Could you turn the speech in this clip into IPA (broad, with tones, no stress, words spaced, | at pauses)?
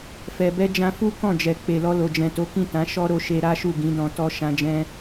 fɛ˨bɛ˧ d͡ʒã˧fu˦ kɔ̃˦˨d͡ʒɛ˨ k͡pe˨lɔ˧lo˨d͡ʒɛ̃˨ to˨˦kĩ˦˨tã˨˦ ʃɔ˦ɾo˧ ʃe˧ɾa˦ʃu˦˨ ɡĩ˨˦dɔ̃˧ tɔ˧ ʃã˧d͡ʒɛ̃˧